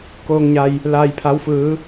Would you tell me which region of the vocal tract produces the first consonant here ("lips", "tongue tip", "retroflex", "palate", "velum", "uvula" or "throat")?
velum